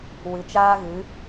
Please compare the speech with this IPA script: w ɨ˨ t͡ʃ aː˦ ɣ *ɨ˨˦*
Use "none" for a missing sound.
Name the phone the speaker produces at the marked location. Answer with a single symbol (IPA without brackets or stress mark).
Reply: ɨ˨˦